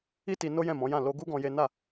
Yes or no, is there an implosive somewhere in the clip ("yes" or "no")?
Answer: no